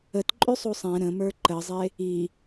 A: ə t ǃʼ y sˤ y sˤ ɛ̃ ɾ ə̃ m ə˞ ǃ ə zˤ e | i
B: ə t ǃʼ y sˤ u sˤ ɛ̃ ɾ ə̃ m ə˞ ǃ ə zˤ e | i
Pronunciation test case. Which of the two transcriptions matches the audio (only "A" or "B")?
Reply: B